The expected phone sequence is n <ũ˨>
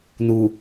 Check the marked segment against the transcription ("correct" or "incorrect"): incorrect